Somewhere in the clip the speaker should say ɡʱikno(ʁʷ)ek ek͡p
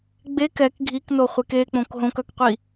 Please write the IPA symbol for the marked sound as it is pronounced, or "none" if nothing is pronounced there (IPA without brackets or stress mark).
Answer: χʷ